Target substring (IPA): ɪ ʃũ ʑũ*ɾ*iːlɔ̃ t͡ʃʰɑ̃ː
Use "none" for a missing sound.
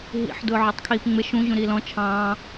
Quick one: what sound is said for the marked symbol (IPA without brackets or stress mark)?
ɾ